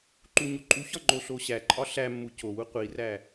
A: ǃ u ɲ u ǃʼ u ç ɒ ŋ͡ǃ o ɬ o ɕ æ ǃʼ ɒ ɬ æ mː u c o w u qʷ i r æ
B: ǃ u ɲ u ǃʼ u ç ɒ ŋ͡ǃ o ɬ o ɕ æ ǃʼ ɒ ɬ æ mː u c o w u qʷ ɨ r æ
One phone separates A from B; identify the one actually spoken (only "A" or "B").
A